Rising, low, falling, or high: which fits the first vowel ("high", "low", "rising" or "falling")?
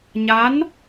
rising